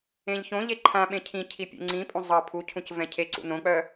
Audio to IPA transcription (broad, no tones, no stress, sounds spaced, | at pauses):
ẽ ʎ ç õ ʎ e ǃʰ ã ɓ ẽ cʰ ĩ cʰ i pʲ ṵ ŋ͡ǀ ĩ pʼ ũ zˤ ɤ pʰ u cʰ ũ c v ɛ̃ cʰ e ǀ ṵ n õ k͡p œ